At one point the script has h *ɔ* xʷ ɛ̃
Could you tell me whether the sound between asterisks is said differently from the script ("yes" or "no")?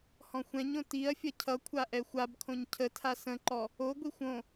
yes